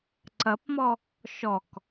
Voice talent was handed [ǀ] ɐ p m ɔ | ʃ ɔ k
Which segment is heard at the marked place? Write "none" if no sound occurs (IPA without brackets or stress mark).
ǀ